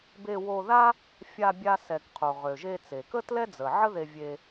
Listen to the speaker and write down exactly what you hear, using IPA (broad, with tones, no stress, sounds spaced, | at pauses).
b e˧ w o˧ ð a˥ | fʲ a˧ bʲ a˧ s ɛ˩ k qʰ o˩ ʁ ø˩ ʒ e˧ t͡s e˩ k ə˥ t l ɛ˥ d͡z ə˩ ʕ ə˥ ð e˧ vʲ e˧